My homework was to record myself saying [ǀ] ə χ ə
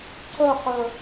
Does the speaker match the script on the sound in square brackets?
yes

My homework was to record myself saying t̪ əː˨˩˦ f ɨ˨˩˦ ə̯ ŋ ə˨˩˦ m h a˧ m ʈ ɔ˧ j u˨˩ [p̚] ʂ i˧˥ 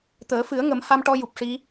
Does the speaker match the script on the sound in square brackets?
yes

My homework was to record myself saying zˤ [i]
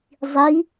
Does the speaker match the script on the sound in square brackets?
yes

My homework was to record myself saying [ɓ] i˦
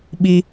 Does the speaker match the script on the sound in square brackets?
yes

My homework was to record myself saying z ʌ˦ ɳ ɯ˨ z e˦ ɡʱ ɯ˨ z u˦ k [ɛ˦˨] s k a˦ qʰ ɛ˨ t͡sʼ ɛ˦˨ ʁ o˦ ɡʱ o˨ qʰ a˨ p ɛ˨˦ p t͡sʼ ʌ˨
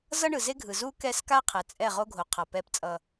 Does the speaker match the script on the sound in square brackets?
yes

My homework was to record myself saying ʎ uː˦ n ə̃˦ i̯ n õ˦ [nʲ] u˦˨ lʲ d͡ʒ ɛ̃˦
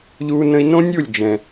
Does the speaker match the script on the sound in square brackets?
yes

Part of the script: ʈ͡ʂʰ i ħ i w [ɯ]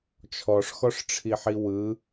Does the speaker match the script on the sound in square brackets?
yes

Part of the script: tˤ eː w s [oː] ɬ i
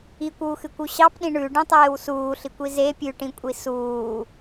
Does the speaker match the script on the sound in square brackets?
no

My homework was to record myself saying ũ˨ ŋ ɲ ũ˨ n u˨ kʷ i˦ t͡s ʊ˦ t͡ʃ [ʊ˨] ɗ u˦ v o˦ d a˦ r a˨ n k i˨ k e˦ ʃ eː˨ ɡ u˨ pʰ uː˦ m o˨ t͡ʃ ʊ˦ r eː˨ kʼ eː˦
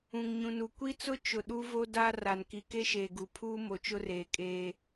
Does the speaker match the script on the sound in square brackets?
yes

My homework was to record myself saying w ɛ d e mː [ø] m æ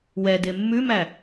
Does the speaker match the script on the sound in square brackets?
no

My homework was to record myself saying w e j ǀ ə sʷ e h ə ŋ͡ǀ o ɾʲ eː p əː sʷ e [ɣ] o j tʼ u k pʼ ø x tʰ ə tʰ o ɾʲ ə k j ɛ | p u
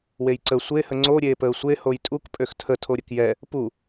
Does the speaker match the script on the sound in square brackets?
no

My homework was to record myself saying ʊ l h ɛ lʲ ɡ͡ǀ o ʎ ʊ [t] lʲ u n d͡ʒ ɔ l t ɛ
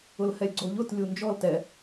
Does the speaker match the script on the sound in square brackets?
yes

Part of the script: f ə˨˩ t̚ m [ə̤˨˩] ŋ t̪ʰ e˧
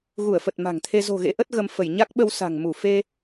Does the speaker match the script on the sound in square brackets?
no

